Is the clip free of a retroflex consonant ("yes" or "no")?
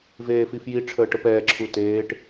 no